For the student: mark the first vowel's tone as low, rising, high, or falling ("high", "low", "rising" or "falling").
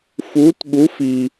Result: rising